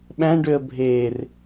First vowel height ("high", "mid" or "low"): low